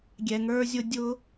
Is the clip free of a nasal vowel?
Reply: yes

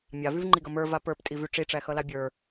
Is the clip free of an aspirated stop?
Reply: yes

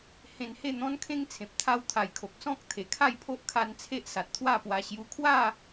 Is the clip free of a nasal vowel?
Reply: no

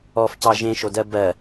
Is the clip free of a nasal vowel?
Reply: no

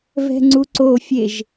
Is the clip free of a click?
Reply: no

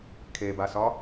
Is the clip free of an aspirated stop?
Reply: no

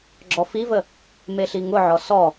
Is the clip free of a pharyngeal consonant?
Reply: no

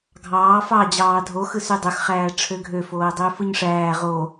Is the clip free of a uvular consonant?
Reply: no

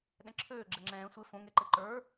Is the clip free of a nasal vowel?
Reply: no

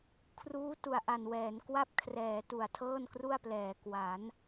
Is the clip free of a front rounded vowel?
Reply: yes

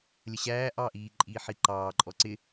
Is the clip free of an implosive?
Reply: yes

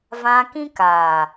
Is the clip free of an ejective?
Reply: yes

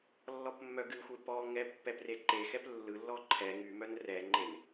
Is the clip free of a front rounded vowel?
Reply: no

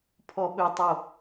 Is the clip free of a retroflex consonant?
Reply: yes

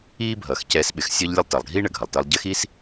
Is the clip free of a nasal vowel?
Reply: yes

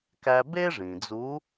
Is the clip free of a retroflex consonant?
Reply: no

